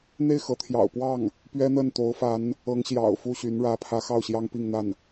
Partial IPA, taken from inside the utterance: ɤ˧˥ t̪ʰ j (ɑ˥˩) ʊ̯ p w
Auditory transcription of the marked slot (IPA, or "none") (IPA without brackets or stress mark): ɑ̰˨˩